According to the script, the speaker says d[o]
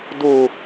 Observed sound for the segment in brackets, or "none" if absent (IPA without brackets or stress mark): u